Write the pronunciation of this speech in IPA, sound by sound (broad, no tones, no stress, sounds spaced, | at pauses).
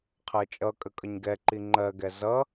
qʰ ɜ t͡ʃʼ ʌ kʼ ə kʼ ʌ ɲ ɡ ɛ ǃ i ŋ͡ǃ ɜ ɡ ɛ z ʌ